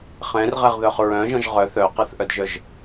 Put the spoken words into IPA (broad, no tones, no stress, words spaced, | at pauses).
χɛ̃rʁɛʁðœχ ɹœ̃ʒɔ̃ʒ ʁœ θœqɛθʔœdʒœʒ